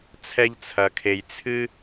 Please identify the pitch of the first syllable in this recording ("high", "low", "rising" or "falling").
high